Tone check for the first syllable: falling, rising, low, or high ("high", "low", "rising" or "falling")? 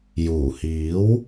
low